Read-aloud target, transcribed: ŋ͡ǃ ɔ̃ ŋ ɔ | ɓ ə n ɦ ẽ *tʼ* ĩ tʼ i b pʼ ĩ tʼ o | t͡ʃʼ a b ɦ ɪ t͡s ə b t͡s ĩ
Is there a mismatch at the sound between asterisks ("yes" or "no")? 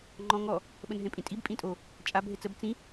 yes